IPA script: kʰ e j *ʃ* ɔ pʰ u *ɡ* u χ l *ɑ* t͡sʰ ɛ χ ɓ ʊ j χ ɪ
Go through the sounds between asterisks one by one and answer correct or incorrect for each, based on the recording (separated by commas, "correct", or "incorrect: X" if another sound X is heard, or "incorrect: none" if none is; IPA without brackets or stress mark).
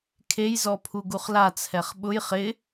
incorrect: z, correct, incorrect: a